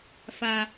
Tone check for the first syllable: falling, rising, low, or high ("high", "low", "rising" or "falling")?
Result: high